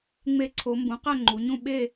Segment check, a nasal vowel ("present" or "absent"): present